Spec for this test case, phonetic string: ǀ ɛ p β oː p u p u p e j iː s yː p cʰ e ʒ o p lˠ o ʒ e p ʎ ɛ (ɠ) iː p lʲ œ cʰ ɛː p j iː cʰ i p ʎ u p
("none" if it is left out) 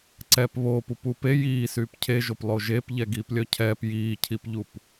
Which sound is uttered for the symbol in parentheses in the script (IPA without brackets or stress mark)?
ɡ